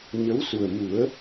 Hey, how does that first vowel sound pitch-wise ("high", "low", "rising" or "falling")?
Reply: rising